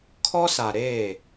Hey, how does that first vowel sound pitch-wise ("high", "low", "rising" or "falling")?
high